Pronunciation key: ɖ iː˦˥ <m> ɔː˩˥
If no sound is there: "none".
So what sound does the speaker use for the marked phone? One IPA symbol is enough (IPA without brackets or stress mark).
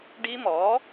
m